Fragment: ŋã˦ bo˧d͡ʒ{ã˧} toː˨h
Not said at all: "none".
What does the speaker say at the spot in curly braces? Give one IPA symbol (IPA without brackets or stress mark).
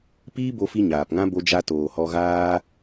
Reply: a˧